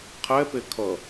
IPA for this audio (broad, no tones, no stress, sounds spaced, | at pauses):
qʰ ɛ p e kʰ ʌ